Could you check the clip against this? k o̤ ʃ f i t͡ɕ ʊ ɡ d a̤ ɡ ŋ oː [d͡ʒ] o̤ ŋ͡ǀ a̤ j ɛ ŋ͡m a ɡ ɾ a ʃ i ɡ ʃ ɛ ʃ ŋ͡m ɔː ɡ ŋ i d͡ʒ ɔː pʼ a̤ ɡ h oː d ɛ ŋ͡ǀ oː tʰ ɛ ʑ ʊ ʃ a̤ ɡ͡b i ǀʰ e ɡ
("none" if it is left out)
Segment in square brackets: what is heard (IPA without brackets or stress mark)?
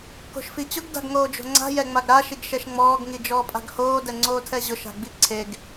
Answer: d͡ʒ